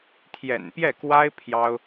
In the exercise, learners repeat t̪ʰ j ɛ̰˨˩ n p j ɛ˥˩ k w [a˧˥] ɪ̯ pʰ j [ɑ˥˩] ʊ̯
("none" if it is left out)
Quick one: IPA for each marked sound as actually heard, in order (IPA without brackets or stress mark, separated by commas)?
a˥, ɑ˥